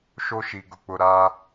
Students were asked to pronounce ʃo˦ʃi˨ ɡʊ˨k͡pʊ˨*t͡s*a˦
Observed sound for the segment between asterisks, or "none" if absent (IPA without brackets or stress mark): ɾ